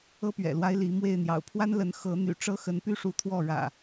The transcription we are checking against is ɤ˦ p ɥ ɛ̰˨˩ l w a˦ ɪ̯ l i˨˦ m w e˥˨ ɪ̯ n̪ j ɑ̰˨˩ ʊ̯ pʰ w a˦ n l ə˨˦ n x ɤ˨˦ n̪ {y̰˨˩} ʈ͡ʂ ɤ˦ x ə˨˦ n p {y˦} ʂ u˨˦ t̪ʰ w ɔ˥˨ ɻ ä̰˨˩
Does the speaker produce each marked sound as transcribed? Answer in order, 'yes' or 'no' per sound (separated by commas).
yes, yes